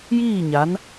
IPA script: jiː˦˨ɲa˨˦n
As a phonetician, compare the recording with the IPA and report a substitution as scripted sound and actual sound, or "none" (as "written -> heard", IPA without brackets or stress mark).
none